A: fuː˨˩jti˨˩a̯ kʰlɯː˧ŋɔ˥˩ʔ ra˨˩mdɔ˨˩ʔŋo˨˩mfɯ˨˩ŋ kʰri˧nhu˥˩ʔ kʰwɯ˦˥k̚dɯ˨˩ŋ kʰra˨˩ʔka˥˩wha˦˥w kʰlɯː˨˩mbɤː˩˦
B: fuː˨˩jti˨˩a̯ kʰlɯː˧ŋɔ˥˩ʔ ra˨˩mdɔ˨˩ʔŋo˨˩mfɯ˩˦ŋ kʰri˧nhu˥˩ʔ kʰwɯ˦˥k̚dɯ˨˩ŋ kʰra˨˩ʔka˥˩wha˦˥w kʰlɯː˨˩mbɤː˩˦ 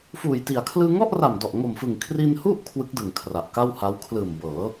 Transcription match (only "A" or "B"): A